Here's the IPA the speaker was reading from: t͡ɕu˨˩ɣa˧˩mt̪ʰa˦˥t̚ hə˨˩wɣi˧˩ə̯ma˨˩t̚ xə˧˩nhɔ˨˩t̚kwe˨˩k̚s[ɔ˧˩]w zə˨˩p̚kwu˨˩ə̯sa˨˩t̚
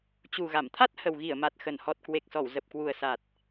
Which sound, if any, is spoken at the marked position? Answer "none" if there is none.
ɔ˧˩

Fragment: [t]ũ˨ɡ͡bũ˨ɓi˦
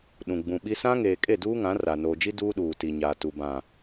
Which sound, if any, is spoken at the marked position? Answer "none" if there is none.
ɗ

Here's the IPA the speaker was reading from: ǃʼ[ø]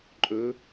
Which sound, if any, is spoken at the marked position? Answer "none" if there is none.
ɵ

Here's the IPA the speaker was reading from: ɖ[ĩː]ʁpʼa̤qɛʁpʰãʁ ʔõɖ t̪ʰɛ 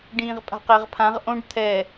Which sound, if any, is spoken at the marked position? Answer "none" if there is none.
ĩː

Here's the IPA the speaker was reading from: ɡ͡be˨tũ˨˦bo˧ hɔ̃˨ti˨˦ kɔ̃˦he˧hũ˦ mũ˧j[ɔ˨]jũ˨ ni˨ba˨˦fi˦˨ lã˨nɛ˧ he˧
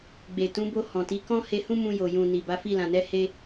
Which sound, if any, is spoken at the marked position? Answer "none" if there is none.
o˨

